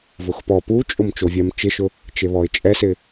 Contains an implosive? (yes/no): no